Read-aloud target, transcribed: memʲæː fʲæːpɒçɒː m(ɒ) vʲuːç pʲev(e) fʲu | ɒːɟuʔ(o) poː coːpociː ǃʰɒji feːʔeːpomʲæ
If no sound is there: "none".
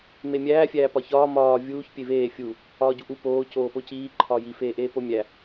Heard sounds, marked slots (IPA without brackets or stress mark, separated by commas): ɒː, eː, u